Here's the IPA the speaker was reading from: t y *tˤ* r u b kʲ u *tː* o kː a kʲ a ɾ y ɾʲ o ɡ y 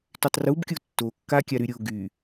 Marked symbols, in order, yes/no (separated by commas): yes, yes